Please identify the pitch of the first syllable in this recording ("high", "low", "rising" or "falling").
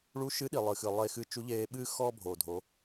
rising